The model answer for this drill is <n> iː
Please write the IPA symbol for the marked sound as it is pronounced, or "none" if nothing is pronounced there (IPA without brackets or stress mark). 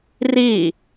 r